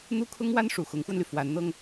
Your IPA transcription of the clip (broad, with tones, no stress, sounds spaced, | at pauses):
n̪ u˥ kʰ ʊ˥ ŋ w a˥ n ʂ u˨˩ x ʊ˧˥ ŋ x w ə˧ n l y˩ f w a˧˥ n n̪ ɤ˧ ŋ